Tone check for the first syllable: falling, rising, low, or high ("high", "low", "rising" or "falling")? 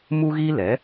high